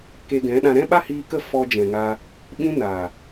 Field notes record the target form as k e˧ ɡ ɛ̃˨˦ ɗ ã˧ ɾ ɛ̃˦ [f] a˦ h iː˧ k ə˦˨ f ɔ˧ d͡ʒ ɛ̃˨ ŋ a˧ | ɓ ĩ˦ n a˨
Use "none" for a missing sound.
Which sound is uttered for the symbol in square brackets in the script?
ɓ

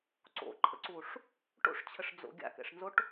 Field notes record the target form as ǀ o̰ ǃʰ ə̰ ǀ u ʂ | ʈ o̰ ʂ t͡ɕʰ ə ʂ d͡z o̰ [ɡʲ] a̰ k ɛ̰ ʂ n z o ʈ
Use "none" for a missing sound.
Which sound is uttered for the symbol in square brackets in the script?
ɡʲ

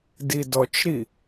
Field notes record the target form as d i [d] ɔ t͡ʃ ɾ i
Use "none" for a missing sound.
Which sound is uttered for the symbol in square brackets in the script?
d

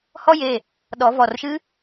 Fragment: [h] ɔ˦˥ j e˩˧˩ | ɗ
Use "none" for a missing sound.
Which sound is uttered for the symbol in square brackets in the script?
h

